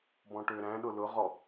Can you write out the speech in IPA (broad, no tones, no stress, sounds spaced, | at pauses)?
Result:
b ɔ̃ ʈ ø ɾ æ̃ ɗ ʊ l ʊ ʁ ɔ